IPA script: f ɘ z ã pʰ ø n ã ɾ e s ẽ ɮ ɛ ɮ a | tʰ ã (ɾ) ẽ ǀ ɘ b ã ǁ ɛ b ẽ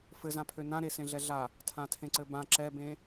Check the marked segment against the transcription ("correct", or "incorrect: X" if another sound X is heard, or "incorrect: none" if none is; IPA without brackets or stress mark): incorrect: tʰ